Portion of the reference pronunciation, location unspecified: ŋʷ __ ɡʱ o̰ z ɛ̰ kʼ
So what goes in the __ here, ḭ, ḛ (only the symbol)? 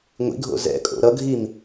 ḭ